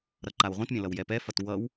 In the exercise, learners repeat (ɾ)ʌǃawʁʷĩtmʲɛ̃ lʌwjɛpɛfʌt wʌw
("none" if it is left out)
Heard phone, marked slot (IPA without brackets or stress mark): ɾ